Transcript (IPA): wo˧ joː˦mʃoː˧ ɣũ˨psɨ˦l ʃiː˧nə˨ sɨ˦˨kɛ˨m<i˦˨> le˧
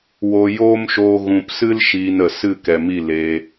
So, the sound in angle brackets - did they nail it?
yes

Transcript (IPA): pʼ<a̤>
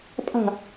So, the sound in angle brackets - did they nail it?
yes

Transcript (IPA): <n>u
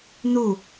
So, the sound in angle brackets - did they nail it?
yes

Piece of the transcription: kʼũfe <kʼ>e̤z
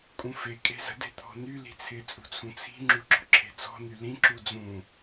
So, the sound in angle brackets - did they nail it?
yes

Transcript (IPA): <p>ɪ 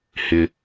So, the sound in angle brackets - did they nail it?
no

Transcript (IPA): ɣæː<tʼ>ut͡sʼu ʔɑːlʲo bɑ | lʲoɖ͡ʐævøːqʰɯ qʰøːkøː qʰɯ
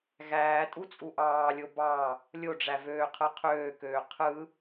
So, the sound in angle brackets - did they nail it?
yes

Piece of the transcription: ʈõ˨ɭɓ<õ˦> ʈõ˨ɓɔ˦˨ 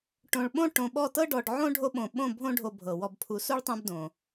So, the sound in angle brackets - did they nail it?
yes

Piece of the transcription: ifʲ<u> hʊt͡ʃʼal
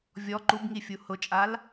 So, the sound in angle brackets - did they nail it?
yes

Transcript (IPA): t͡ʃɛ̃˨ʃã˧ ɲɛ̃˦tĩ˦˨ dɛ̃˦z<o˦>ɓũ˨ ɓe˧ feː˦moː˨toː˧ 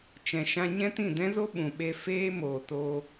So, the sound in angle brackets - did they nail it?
yes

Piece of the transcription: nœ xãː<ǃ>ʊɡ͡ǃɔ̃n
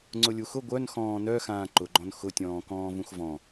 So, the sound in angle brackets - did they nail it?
yes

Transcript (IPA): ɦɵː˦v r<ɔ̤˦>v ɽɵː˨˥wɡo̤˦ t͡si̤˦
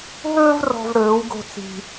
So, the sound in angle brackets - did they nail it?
yes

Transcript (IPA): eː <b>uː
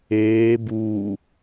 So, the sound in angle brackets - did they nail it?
yes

